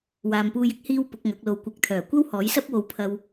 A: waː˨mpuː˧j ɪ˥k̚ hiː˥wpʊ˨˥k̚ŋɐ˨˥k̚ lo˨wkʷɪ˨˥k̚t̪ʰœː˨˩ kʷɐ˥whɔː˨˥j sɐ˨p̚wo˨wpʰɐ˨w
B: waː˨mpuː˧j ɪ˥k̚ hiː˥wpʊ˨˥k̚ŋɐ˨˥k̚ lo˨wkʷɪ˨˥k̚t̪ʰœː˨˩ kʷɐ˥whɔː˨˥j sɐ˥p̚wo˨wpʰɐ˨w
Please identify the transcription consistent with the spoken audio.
B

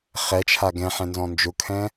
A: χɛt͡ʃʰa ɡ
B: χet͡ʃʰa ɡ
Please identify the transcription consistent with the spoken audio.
A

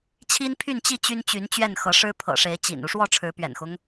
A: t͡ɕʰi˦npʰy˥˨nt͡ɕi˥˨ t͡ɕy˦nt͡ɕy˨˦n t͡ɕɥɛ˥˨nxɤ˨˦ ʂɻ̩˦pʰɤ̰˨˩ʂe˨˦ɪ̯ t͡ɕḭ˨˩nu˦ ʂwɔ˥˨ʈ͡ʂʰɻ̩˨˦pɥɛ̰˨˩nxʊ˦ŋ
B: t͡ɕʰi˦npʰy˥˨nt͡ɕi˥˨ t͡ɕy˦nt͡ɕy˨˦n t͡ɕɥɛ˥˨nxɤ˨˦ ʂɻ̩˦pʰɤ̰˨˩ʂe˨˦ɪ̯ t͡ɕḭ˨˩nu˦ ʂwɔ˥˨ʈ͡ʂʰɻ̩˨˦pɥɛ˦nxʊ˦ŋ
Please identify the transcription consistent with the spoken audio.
A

